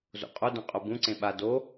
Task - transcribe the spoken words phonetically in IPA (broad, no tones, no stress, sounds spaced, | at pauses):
z o̰ qʼ o d œ̃ qʼ o b ũ ǀ ẽ ɓ a d o